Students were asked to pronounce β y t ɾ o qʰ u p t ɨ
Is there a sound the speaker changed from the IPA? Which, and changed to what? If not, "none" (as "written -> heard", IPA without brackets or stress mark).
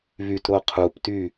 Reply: ɨ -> y